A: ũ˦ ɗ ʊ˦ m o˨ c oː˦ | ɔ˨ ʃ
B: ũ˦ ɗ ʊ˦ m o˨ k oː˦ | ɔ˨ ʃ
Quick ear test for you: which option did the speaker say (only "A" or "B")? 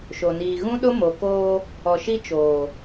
B